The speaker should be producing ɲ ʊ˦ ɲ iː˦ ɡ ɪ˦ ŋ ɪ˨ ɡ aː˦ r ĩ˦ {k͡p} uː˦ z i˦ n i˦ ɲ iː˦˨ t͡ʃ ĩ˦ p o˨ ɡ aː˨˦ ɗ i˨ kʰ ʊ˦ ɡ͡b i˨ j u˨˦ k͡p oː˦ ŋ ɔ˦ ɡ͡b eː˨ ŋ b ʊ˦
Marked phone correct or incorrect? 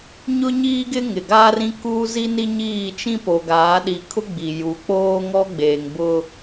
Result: incorrect